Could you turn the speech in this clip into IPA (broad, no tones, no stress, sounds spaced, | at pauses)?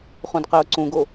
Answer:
χ ũ d q e ʊ̯ ǀ ũ ɡ o